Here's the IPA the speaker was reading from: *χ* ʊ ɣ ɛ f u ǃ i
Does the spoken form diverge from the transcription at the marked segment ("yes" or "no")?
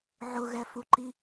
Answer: yes